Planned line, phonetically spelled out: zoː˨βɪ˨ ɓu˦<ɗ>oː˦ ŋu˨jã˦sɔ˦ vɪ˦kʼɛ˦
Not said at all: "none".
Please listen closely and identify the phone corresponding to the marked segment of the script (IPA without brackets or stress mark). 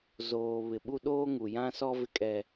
ɗ